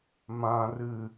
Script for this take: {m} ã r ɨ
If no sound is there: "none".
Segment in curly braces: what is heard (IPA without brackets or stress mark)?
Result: m